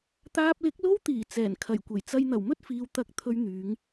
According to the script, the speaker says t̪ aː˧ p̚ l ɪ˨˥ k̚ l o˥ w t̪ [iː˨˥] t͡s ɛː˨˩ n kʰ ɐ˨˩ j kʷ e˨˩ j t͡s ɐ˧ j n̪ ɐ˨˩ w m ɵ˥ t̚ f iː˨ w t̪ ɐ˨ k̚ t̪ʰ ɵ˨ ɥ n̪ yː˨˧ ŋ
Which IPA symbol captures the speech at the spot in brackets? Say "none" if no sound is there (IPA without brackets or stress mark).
iː˨˩